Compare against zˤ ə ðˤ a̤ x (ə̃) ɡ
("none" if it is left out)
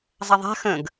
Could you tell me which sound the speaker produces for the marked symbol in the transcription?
ə̃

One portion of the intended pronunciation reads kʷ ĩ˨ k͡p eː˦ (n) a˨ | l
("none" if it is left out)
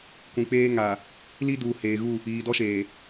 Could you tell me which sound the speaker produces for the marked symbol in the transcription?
ŋ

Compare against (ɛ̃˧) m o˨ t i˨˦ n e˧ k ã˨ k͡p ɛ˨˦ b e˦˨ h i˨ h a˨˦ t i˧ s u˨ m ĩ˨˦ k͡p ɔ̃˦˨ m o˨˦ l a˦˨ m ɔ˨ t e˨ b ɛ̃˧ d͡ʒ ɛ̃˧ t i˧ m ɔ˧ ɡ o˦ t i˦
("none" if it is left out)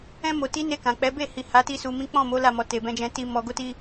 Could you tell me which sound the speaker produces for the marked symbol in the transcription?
ɛ̃˧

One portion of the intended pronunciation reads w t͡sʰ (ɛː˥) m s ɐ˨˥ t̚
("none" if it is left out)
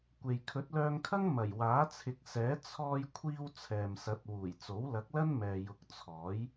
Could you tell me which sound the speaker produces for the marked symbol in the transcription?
ɛː˨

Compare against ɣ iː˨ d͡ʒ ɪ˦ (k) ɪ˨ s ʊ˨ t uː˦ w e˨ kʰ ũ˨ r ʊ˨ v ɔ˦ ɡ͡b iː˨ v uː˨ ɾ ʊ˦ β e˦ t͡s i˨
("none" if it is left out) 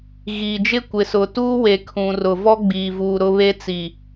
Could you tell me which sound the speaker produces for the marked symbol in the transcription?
kʷ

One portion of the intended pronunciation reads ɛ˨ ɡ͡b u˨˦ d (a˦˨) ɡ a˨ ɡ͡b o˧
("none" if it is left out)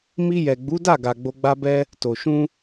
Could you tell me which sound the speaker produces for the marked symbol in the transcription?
a˦˨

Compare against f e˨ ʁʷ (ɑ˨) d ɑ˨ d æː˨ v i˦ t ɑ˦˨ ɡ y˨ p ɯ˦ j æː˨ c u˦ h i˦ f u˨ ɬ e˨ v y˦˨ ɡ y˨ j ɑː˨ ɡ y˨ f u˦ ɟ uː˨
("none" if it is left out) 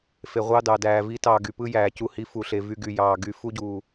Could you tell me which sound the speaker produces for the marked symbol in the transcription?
ɑ˦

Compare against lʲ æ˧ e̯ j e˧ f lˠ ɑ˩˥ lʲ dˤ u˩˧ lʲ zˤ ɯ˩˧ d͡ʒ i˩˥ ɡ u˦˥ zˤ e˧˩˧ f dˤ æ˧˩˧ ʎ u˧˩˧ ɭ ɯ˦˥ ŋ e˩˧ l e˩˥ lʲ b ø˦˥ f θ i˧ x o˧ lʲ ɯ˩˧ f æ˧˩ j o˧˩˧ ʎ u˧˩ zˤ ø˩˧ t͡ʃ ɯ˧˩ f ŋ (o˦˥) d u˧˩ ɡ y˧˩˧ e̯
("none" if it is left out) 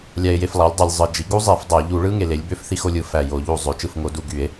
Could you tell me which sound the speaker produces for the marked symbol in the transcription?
o˩˧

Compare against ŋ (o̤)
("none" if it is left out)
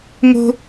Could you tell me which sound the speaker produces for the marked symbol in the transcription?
o̤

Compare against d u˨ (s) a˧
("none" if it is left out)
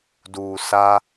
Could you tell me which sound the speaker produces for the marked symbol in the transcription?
s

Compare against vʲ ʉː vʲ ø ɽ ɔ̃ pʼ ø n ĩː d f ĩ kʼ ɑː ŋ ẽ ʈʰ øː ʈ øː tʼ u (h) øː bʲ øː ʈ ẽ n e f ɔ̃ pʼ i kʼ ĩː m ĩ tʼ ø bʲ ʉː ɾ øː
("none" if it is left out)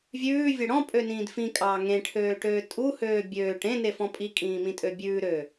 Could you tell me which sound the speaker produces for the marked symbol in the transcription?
h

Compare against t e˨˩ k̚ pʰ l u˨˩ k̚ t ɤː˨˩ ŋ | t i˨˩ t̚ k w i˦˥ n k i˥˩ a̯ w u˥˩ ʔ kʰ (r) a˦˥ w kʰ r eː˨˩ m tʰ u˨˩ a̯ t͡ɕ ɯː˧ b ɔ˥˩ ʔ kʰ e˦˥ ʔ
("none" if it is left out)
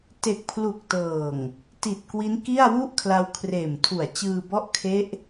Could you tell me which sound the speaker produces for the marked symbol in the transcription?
l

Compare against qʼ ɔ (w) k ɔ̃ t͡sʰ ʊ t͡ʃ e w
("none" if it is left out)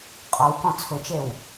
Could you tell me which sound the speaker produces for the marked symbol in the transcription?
w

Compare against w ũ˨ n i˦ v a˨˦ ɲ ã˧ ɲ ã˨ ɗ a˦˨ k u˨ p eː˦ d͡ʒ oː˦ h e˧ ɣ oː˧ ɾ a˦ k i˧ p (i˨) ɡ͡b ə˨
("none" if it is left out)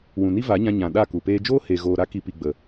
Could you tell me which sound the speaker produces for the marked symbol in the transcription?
i˨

